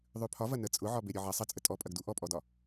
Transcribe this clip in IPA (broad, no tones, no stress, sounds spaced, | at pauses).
ðˤ ʉ pʰ ɒ v ɐ n ə t͡sʼ ʊ ʕ ɒ b e ɾʲ ɔ ʕ ɐ sˤ ə t͡sʼ ə tʼ ɔ pʼ ɐ ɡ d u ʔ ɔ pʼ ɔ d ɒ